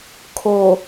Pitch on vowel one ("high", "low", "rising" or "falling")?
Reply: low